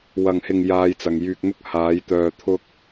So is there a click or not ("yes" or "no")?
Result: no